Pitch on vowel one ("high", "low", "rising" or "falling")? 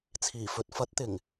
low